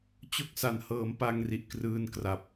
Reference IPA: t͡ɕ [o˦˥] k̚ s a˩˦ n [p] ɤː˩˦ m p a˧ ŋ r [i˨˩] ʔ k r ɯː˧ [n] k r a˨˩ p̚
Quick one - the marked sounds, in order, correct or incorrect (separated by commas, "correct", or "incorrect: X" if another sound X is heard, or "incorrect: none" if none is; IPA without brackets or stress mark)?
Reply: correct, incorrect: h, correct, correct